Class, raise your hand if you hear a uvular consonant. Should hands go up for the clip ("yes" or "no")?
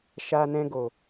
no